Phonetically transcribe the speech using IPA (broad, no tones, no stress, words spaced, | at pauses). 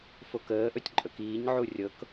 fokəːʔɵtʲ ǃʼɵkiːɲʕu rʲɤk